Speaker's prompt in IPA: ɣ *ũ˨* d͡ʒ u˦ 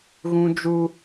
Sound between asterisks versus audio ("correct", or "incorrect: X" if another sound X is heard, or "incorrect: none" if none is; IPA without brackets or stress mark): incorrect: ũ˦